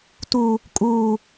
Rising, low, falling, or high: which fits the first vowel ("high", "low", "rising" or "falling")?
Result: high